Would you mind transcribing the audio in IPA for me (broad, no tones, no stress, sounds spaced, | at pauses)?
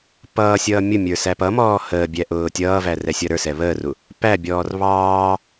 p ʌː sʲ ʌː mʲ ʊ mʲ ə˞ s æ p ʌ m ɔː h əː bʲ æ ʔ ʊː tʲ ʌː v æ r ɛ sʲ ʌ ɾ ə˞ s ɛ β əː r u | p æ bʲ ɔː r β ɑː